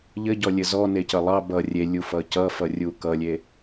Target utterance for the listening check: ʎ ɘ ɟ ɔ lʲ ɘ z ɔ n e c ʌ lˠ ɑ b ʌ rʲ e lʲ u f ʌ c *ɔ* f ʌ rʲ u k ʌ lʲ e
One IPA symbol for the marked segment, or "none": ʌ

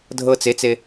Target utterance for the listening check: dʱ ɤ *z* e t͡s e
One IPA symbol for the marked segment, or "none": t͡s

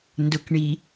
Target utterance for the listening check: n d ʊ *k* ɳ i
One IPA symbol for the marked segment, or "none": k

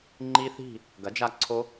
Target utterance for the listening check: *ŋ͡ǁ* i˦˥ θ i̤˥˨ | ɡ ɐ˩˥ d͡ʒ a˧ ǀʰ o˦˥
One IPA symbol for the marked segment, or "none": ŋ͡ǃ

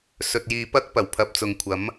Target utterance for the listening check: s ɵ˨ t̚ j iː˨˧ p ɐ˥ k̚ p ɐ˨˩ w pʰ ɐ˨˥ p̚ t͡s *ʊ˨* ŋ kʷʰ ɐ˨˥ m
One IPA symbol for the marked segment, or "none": ʊ˨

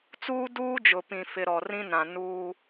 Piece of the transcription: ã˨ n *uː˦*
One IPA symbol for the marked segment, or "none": uː˦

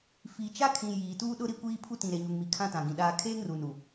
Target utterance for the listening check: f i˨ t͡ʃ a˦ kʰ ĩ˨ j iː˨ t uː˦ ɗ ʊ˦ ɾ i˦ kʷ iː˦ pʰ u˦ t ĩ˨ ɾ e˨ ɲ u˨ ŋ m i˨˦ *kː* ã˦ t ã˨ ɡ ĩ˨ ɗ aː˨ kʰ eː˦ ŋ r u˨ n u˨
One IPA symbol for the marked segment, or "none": kʰ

